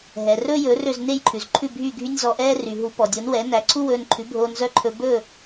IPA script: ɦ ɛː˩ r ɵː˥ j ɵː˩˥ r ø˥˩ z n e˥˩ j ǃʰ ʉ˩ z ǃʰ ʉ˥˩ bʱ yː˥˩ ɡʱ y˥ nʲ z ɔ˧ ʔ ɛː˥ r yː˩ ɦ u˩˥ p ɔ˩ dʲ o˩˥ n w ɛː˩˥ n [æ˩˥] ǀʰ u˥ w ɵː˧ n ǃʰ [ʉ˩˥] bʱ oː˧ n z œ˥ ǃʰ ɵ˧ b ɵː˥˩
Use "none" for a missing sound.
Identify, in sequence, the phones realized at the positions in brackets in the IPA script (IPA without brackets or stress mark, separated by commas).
æ˩˥, ʉ˩˥